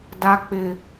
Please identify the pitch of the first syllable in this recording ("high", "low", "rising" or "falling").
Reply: high